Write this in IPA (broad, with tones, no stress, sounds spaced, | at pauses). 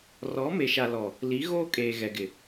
r ɔ˨˦ m e˨ ʃ a˨ l ɔ˨ | l i˨˦ ɣ oː˦ kʼ eː˨ ɣ ɛ˨ ɡ ɪ˨